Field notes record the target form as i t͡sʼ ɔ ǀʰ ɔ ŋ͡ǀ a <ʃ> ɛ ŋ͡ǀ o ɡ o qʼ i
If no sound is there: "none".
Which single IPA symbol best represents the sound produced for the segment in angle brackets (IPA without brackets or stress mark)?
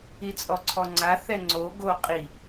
θ